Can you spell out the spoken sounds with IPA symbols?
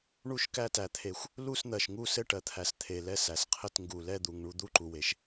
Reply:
ɳ u˦˨ ʃ k æ˦˨ t æ˩ t̪ʰ e˩ xʷ | l u˦˨ s n̪ ɜ˩ ʃ ŋ u˦˨ s ɘ˦˨ ʈ ɜ˩ t̪ʰ æ˩ s t̪ʰ e˩ l ɛ˦˨ s æ˩ s qʰ ɘ˦˨ t ŋ ɡ u˩ l ɛ˦˨ d̪ u˩ ŋ ɳ u˦˨ d̪ u˦˨ ǃ u˩ w e˩ ʃ

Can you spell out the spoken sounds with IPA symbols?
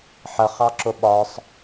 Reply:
ħ ə χ ɑ ǁ ʊ ɓ ɒ sˤ

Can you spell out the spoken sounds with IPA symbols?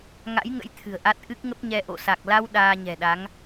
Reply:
ŋ a̰˧˥ j ŋ ə̰˧˥ j t̪ʰ ɨ̤˨˩ ə̯ ʔ a˦˥ t̚ ʔ ɨ˦˥ k̚ ŋ ə˦˥ p̚ ɲ ɛ˧ ʔ o̰˧˨ s a˨˩ k̚ l a˧ w ɗ aː˧ ɲ ɛ̤˨˩ ɗ a˨˦ ŋ

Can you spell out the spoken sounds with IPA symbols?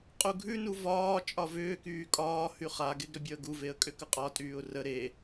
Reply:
qʼ u ɡʱ ʉ n u v ɒː t͡ʃʼ ɒ v ʏː k yː kʼ ɒː h y χ a ɡ e ɡ ɾ ʏ bʲ ɒ ə̯ ɡ u v e ə̯ kʼ ʏ k ə qʼ ɒ tʼ yː ʊ̯ r ə ɾ e

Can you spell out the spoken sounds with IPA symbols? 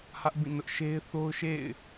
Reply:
h ä˦ ʔ b ĩ˦˨ n ʊ˦ ʔ ʃ e˦ ɪ̯ θ o˦ ʊ̯ ʃ ḛ˦˨ ɪ̯

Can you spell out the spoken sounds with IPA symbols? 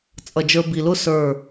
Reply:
t͡sʼ ʌ˨ d͡ʒ ə˞˧ b i˨ l ʊ˦ s ə˞˦˨

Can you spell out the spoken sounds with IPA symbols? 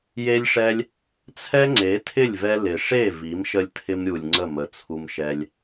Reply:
j e˦ lʲ ʂ ɛ˦ lʲ | t͡sʰ ɛ˦ ŋ͡ǀ e˨˦ tʰ ɪ˦˨ lʲ v ɛ˧ l ɪ˨ ʂ e˦˨ v i˨˦ m ʃ ə˧ lʲ tʰ ɪ˧ m ɾʲ u˨ lʲ ŋ͡ǀ ə˦˨ m ə˨ t͡sʰ u˧ m ʃ ɛ˧ lʲ

